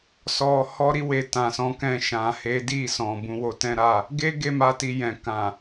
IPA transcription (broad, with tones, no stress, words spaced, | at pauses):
sɔ˨ hɔ˧ɾi˧we˨ tã˨sɔ̃˨˦kɛ̃˧ ʃã˨he˨˦di˦˨ sɔ̃˨ bũ˧wo˧tɛ̃˦ɾa˦˨ | ɡe˦ ɡe˦˨ma˧ti˨ jɛ̃˨kã˨